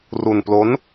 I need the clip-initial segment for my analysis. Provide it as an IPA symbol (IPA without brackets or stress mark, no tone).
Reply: r